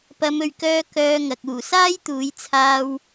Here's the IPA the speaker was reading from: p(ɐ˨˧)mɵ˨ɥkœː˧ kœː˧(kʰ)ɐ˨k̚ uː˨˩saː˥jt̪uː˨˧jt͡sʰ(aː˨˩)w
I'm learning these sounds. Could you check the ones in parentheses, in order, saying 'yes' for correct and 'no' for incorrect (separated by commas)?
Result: yes, no, no